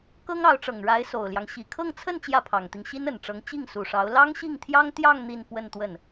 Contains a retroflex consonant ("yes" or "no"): yes